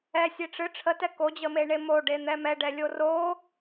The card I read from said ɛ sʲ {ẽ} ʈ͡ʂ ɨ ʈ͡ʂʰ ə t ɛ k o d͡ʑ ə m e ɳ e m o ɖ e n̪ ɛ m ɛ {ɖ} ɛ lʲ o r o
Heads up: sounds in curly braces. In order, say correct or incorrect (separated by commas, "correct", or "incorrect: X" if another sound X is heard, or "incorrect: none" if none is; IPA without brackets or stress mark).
incorrect: e, correct